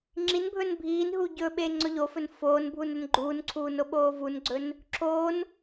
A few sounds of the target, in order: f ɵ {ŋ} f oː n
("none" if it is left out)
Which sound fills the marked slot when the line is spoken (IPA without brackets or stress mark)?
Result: n